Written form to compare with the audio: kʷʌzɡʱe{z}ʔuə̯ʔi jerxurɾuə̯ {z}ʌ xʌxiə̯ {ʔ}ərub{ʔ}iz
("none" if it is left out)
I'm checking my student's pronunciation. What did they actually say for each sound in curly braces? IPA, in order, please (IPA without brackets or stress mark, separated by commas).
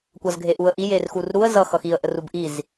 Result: none, z, ʔ, ʔ